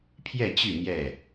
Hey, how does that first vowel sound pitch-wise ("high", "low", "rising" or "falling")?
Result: falling